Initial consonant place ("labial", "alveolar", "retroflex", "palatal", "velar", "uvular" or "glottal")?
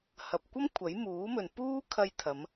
glottal